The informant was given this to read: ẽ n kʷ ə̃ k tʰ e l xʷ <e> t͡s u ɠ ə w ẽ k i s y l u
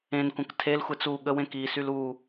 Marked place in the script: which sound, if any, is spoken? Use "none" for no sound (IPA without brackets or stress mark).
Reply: e